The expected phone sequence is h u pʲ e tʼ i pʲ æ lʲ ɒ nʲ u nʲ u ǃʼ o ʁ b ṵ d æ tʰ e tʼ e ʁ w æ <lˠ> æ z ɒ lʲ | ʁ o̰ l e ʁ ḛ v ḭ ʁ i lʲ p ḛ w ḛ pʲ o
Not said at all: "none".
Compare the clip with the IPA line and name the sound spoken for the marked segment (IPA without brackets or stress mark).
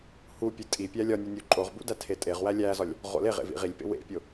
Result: lʲ